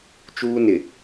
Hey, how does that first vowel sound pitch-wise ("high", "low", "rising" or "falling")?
high